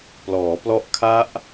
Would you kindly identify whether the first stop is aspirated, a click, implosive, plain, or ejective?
plain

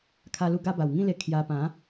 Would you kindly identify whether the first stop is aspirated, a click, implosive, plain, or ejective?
aspirated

